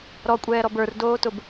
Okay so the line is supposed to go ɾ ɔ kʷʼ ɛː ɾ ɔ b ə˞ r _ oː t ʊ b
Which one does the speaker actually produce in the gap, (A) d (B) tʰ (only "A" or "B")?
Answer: A